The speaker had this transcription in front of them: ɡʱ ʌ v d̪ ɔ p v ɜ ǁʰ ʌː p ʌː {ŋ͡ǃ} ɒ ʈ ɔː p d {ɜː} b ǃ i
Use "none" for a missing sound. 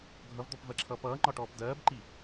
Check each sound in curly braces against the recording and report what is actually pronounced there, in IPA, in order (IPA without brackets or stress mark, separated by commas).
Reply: ŋ͡ǃ, ɜː